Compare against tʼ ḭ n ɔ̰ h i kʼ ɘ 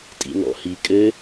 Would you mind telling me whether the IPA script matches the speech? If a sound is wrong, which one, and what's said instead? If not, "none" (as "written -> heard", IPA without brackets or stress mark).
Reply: none